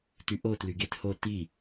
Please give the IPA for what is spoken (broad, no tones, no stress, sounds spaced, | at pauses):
t y ʔ o t l y ɡ e t h o t i